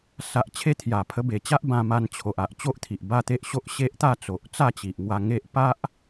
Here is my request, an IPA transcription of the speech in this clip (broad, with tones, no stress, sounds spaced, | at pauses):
s a˨ ʔ t͡ɕʰ e˧ t̪ʰ j a˨˩ pʰ ə˧ b e˨˩ t͡ɕ a˦ ʔ b ã˧ m a˧ n t͡ɕʰ o˨ ʔ a˨ ʔ t͡ɕ o˦ ʔ t̪ʰ i˨ ʔ b a˥˧ t̪ e˦ ʔ ɕ o˦ ʔ ɕ e˦ ʔ t̪ a˥˧ t͡s o˨ ʔ t͡s a˥˧ t͡ɕ i˨ ʔ ŋ w a˧ ŋ e˦ ʔ p a˦ ʔ